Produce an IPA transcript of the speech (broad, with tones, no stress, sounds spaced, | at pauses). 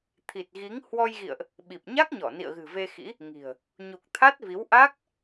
t̪ʰ i˨˩ t̚ ɣ i˨˦ ŋ h w ɔ˧ j ɣ ḭ˧˨ ə̯ ʔ | ɓ i˨˩ p̚ ɲ a˦˥ k̚ ɲ ɔ˧˩ n ḭ˧˨ ə̯ ɣ ɨ̤˨˩ v e˧ x ḭ˧˥ | ŋ i̤˨˩ ə̯ | ɲ u˨˩ k̚ t̪ʰ a˦˥ t̚ v i˨˦ w ʔ a˦˥ k̚